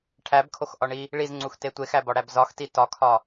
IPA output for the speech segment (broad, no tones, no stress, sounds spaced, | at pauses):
ʈʰ æ b kʰ o x ʔ ɒ ɳ i | ɭ i z ŋ͡ǀ u x t e tʷ e x æ b ɒ ɽ æ b z ɒ x t i t ɒ kʰ ɒ